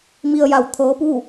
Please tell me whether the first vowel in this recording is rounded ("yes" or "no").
no